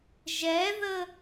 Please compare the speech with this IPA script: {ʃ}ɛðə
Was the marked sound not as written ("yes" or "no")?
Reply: yes